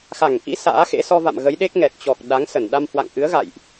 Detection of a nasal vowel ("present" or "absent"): absent